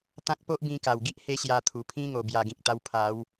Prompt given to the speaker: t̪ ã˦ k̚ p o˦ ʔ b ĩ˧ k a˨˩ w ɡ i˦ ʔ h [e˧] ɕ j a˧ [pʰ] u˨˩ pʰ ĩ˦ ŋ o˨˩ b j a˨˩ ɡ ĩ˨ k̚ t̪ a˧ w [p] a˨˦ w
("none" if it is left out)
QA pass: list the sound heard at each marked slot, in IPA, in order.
e˧, t̪ʰ, pʰ

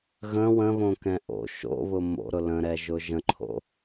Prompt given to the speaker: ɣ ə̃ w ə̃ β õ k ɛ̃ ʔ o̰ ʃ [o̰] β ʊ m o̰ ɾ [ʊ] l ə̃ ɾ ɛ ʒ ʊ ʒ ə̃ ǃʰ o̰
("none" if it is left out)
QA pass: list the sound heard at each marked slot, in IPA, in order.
o̰, ʊ

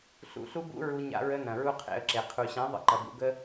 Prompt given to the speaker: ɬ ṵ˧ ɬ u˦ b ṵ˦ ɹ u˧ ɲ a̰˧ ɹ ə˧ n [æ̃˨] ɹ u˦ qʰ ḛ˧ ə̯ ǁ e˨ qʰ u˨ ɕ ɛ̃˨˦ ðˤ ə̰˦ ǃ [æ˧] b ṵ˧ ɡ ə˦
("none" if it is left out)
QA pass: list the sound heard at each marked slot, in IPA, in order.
ɐ̃˨, ɐ˧

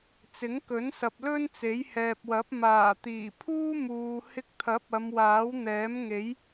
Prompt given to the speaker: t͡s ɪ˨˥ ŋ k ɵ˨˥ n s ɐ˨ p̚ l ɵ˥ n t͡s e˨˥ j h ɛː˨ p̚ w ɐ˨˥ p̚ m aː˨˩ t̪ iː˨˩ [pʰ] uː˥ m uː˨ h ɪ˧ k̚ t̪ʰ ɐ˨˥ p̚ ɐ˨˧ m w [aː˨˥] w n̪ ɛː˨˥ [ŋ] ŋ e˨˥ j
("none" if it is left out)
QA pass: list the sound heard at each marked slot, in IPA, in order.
pʰ, aː˨˥, m

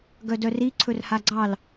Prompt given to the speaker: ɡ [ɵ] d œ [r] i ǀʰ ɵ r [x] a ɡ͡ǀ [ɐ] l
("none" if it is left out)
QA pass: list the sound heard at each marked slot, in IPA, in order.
œ, r, h, ɑ

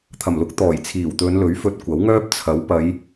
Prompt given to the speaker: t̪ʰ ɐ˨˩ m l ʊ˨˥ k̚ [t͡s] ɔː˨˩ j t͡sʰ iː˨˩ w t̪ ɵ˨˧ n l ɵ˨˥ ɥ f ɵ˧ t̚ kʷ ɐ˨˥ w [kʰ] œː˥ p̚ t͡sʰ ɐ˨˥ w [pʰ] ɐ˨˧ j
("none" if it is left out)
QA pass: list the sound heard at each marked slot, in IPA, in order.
t̪, ŋ, p

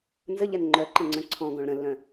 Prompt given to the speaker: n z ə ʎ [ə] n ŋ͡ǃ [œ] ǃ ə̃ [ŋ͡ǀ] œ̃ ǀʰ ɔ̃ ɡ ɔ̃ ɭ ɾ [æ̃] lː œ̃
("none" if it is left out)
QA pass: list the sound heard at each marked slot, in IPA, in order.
ɛ, œ, ŋ͡ǀ, ə̃

